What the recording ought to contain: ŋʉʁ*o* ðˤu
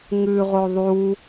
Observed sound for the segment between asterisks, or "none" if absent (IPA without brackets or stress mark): o